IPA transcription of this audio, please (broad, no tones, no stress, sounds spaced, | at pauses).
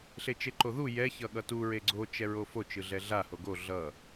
ɬ e t͡ʃ e ǃ o ð u j ɛ ç ʌ ɠ ʌ t u ɹ e ɡ͡ǀ o t͡ʃ ɛ ɹ o f o t͡ʃ ɯ ɮ ɛ ɮ a h o ɡ o ɮ ʌ